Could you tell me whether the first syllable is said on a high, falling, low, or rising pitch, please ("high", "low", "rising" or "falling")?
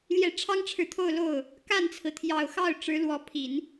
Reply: low